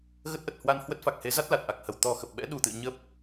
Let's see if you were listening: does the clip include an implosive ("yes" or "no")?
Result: yes